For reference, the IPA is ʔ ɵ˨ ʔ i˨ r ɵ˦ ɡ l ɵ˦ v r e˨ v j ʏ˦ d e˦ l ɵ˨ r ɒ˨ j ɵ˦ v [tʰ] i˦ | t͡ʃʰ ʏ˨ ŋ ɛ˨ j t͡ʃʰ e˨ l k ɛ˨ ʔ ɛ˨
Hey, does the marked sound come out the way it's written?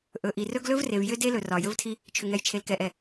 yes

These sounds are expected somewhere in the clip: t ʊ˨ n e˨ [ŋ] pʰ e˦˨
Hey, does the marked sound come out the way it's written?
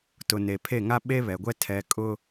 no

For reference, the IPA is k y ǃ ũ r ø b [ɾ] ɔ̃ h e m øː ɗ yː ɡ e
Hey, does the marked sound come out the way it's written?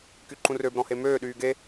yes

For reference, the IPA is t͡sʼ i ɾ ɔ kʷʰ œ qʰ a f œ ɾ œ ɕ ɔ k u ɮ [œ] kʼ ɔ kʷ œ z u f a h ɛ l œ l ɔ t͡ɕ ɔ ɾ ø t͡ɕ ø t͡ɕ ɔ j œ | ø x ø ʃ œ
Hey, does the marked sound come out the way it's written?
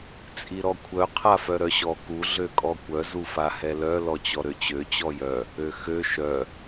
no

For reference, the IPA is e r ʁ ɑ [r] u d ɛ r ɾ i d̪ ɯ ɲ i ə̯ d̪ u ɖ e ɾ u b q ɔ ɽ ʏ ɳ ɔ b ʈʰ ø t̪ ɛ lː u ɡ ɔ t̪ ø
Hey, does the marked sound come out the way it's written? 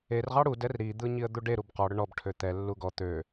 no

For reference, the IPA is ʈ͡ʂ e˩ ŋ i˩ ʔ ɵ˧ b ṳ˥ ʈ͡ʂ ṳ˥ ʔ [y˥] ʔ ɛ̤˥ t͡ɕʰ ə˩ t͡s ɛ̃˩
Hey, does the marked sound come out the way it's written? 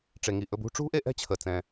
no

